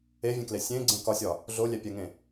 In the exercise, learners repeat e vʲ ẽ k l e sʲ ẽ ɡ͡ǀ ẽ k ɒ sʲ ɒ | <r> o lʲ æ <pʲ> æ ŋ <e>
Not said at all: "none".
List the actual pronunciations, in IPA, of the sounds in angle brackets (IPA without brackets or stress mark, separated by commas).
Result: ɮ, pʲ, ẽ